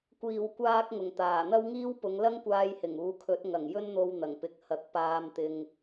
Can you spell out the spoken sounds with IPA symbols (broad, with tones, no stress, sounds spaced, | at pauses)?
kʷ iː˨˩ w kʷ aː˧ k̚ ŋ ʊ˨˩ ŋ t̪ aː˨˩ n̪ ɐ˥ w ŋ iː˥ w p ʊ˨˧ ŋ l ɐ˥ ŋ kʷ aː˧ j h ɪ˨˩ ŋ uː˨˧ kʰ ɵ˨˥ t̚ ŋ ɐ˨˩ ŋ j ɵ˥ n n̪ o˧ w n̪ ɐ˨˩ ŋ p ɪ˨ k̚ h ɐ˨˥ k̚ p aː˧ m t̪ ɪ˧ ŋ